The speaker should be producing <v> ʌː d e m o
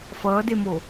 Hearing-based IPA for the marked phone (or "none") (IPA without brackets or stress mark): f